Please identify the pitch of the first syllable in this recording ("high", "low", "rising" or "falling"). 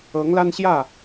rising